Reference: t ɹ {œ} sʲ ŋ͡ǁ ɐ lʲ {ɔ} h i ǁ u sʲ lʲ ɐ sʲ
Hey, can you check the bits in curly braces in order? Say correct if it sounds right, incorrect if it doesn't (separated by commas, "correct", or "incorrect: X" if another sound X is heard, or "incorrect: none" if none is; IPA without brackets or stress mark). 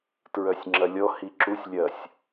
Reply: correct, correct